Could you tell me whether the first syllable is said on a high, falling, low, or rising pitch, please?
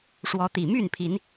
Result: rising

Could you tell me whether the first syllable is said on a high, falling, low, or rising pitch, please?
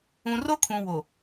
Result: low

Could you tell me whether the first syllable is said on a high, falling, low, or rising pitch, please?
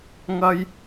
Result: high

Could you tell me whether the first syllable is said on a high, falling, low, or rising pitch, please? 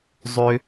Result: high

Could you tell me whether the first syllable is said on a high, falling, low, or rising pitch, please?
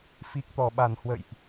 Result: low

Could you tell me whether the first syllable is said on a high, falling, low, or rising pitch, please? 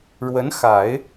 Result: rising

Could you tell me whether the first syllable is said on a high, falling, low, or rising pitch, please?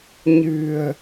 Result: low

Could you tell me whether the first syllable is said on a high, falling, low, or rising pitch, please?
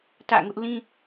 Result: falling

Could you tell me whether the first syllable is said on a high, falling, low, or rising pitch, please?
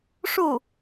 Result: falling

